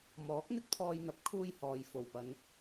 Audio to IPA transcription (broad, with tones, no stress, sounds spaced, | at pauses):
m ɔː˨˥ k̚ n̪ ɪ˥ k̚ t̪ʰ ɔː˧ j n̪ ɐ˨ p̚ kʰ uː˥ j h ɔː˨ j f o˨˩ w p ɐ˨˧ n